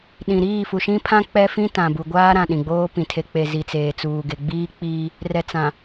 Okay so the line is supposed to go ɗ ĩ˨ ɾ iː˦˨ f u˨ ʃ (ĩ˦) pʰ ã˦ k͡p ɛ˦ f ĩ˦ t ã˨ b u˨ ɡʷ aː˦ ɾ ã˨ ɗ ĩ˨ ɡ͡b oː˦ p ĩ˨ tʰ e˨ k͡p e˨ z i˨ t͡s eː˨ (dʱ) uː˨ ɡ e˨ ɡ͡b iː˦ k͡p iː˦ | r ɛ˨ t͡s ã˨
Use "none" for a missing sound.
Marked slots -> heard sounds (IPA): ĩ˦, t͡s

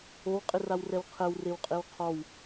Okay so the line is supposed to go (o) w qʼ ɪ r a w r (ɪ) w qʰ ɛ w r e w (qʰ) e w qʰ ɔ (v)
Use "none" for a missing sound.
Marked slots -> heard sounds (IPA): o, ɛ, qʼ, w

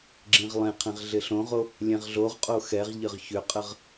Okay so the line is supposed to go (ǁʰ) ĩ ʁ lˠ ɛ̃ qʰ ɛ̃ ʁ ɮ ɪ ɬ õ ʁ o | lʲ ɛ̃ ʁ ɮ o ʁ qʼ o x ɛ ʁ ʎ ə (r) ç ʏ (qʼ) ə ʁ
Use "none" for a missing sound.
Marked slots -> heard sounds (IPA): ɡ͡ǁ, ʁ, qʼ

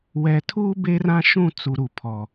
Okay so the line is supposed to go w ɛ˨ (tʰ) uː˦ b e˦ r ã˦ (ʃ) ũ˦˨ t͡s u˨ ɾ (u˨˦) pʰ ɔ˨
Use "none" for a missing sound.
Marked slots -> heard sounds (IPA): tʰ, ʃ, u˨

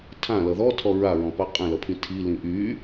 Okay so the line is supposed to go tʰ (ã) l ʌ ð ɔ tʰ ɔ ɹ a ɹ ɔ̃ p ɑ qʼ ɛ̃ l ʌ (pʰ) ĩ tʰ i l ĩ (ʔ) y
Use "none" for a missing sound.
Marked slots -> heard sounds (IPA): ã, pʰ, ʔ

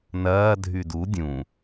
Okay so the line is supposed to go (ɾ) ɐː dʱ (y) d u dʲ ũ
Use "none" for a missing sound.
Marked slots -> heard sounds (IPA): n, y

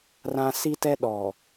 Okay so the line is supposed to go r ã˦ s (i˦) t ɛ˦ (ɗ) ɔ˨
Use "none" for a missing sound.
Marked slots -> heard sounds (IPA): i˦, ɗ

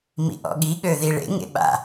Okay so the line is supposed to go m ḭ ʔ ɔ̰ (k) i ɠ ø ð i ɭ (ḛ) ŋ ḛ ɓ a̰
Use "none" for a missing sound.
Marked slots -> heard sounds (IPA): ɠ, ḛ

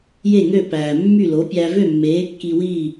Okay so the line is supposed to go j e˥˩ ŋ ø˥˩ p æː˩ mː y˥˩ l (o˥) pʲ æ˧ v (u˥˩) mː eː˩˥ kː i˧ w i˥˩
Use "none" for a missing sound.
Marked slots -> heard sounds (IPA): o˩˥, ø˥˩

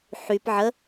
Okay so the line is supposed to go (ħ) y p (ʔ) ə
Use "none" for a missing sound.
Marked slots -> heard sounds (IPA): ħ, ʕ

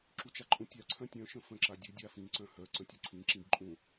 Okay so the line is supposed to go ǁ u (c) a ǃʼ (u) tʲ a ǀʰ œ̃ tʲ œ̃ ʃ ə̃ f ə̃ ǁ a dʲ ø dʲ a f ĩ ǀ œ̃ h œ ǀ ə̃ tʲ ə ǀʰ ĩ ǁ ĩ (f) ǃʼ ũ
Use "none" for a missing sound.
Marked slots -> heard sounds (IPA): t͡ʃ, ũ, b

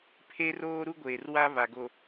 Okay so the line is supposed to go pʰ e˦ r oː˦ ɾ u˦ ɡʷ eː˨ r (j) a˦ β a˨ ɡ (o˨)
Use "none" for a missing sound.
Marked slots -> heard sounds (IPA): w, o˨

